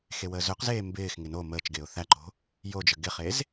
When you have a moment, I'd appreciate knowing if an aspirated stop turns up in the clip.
no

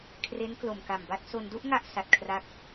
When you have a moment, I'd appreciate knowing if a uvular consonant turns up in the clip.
no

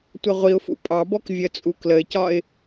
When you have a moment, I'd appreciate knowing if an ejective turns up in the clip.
yes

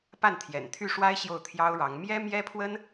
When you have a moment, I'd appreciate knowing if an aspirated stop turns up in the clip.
yes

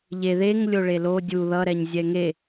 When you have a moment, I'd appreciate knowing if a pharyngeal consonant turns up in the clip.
no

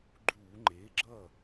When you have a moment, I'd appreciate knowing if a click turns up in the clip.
yes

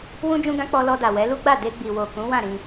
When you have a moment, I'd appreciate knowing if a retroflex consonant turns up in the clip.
no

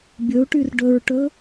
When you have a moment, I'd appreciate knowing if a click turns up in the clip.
no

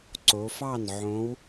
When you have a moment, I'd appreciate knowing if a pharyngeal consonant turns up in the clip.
yes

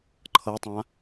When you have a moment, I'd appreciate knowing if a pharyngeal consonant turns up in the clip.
no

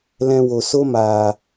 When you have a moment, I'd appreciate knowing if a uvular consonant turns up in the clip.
no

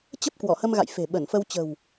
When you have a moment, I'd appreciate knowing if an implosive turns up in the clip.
yes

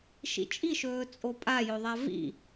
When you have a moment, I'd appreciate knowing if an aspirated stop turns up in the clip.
no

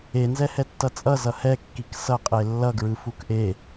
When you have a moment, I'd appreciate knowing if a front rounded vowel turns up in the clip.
no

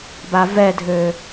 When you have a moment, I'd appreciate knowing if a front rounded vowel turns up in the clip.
yes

